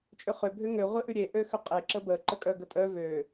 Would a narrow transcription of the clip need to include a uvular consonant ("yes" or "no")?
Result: yes